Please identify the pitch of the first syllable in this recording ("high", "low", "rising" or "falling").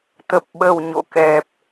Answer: low